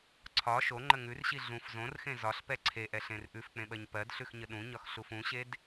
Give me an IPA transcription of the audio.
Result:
ǀʰ ɒ ʃ o ŋ͡ǃ ə ŋ ʉ r ɕ i ɮ ũ f z õ r x ẽ z ɒ ɬ p ɛ ǀʰ e ʔ ɛ ɬ ẽ r ʔ ʉ f k͡p ẽ ɓ ɜ ɲ p ɜ d ɬ ʉ x ɲ ə ɗ ũ ɲ ɒ x ɬ u f ũ ɕ e d

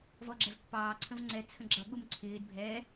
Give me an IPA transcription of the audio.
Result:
v ɔ ɡ͡ǁ ɛ v pː ɑː ǀʰ ə̃ v ŋ͡ǀ ɛ t͡sʰ ə̃ ɡ͡ǁ ʌ ɠ u m ǀʰ ɪː d bʱ ɛ

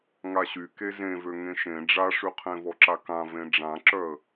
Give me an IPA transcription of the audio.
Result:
ŋ a ɕ y k e z ẽ v ø ŋ ẽ ʃ ẽ ɖ͡ʐ a ʂ y qʰ ẽ v ɔ ǁ a k ã v ẽ ɖ͡ʐ ã ǁ œ ə̯

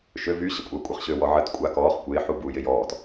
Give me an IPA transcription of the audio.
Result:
ʃ ø v y ɕ ə kʷʼ a kʷʼ ə χ ɕ ø w ɔ ʕ ə t kʷʼ a k ɔː χ kʷ ɪː ħ u b u j ɪ j ɔː t

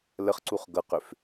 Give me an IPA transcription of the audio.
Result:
l ə χ ǀ u χ ɡ ʌ q ʏ f

